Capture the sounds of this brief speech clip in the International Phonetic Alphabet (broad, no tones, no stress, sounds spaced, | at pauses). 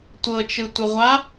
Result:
tʷ ɤ t͡ʃ ɯ tʷ ɤ ʁʷ a